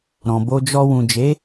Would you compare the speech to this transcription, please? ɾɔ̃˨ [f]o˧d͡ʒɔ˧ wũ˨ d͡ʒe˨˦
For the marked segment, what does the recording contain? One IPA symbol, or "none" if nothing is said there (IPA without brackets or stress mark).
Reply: b